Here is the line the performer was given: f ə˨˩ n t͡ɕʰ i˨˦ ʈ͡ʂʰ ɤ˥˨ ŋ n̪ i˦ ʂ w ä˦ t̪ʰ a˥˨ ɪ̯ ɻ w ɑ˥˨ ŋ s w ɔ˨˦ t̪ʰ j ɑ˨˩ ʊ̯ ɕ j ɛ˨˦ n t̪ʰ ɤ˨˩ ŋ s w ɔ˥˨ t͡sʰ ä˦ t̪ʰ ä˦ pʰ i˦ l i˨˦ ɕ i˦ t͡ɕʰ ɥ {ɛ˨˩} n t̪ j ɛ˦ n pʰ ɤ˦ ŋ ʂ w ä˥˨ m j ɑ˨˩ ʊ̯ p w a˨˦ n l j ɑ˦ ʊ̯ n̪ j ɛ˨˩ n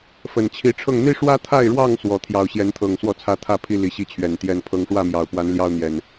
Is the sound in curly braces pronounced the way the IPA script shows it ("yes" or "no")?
yes